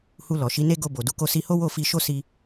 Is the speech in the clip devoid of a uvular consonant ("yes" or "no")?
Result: yes